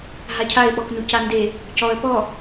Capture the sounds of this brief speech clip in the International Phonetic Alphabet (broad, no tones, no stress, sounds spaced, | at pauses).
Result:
ɦ a cʰ a ɪ̯ ɓ ɔ k n u c a n d e | c ɔ ə̯ p ɔ